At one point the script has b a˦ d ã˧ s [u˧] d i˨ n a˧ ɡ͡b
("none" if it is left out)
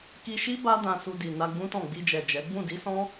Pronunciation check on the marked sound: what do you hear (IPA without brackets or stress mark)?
u˧